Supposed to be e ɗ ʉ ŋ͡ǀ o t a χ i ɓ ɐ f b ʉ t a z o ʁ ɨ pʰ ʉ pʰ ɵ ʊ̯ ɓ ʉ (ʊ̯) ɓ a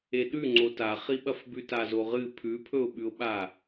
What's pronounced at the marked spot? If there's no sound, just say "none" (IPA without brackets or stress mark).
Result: ʊ̯